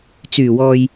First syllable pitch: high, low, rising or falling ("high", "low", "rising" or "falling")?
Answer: low